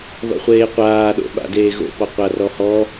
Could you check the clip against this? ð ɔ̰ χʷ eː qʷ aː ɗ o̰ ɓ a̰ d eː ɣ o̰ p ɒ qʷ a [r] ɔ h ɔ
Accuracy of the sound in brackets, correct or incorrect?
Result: correct